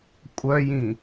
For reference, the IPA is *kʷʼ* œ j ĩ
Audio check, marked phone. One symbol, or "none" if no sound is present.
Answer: kʷʼ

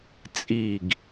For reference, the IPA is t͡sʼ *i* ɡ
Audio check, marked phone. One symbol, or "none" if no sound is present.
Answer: i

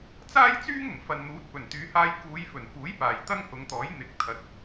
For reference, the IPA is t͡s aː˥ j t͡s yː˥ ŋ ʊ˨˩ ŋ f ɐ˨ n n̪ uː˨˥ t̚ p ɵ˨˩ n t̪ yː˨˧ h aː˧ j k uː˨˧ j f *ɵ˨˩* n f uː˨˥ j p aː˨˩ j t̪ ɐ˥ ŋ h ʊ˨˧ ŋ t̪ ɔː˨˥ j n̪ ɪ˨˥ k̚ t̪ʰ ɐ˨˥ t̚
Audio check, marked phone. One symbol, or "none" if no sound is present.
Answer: ɵ˨˩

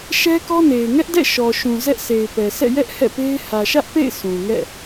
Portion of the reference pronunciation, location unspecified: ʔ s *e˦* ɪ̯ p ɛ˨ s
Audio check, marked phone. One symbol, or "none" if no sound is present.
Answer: e˨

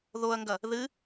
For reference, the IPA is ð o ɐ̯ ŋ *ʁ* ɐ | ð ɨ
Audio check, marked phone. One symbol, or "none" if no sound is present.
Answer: ɡ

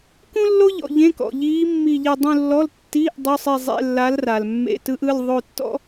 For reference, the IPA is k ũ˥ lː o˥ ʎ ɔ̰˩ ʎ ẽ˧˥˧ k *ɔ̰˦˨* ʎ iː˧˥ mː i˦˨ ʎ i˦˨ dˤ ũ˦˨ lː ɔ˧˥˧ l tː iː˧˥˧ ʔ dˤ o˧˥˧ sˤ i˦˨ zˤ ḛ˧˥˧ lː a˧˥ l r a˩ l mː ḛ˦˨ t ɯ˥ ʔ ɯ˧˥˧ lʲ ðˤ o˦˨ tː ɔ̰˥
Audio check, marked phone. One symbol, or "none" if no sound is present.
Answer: ɔ̰˩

